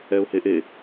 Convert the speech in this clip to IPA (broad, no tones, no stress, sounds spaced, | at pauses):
ɛ ʊ̯ h e ʔ e